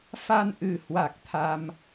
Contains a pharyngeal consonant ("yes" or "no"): no